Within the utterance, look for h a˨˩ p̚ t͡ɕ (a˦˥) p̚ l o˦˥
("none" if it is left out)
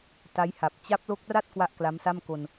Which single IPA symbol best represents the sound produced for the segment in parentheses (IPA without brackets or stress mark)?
a˦˥